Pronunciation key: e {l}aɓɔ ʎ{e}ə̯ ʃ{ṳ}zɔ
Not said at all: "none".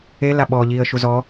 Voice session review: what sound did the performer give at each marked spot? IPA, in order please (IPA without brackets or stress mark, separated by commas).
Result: l, i, u